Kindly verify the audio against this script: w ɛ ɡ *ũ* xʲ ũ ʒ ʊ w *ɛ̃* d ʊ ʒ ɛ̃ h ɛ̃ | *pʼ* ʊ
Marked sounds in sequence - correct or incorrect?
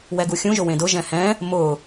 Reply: incorrect: u, incorrect: ẽ, incorrect: m

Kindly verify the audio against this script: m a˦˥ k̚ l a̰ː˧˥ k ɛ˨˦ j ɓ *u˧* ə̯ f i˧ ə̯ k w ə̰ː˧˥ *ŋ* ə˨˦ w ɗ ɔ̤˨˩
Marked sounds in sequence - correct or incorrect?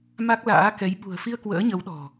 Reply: incorrect: ṳ˨˩, incorrect: ɲ

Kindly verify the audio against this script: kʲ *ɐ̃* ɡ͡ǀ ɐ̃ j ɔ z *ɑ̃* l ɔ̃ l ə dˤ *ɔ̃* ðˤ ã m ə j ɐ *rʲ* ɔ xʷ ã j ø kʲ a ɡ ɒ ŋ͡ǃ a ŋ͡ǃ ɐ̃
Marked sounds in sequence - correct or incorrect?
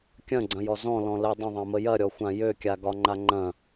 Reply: correct, incorrect: ɔ̃, incorrect: ə̃, incorrect: ɾʲ

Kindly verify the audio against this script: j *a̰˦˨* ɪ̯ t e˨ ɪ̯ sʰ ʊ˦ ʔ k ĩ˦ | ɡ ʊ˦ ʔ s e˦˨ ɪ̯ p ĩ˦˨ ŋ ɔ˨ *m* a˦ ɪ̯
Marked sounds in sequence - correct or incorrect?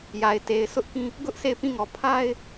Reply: incorrect: a˨, incorrect: pʰ

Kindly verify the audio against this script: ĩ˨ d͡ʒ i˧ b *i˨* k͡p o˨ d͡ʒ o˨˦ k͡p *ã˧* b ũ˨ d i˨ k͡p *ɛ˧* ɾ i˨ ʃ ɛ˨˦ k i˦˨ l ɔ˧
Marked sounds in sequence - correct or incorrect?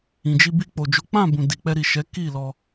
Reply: incorrect: i˧, incorrect: ã˦˨, correct

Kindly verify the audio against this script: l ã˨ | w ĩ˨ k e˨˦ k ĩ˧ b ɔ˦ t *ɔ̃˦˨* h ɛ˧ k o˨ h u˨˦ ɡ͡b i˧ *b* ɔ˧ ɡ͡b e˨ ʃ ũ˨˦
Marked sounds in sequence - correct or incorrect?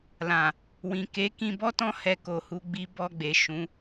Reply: incorrect: ɔ̃˦, correct

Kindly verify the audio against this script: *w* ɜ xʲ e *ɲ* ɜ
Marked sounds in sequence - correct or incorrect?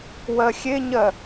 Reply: correct, correct

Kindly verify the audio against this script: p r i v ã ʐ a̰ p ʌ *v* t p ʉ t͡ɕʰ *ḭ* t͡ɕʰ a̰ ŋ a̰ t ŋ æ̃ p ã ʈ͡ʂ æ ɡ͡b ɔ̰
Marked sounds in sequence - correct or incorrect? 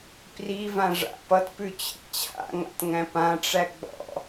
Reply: incorrect: none, correct

